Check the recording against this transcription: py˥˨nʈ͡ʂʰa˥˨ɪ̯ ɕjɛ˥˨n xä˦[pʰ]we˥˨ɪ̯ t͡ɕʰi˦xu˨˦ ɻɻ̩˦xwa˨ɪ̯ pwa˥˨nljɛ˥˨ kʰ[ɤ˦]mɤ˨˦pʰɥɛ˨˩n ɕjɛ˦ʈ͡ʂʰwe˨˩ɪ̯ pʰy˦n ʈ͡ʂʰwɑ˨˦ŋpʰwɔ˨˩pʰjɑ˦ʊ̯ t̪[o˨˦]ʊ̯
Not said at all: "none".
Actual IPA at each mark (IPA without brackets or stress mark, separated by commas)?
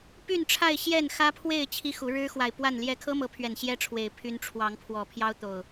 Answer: pʰ, ɤ˦, o˨˩